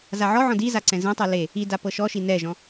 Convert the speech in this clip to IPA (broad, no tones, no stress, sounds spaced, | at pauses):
z a ʕ ɔ ʕ ɔ̃ d i z a ǀ ɛ̃ z ẽ tˤ ɯ l e | i d a p ɤ ʃ ɔ ʃ i n ɛ ʒ ɔ̃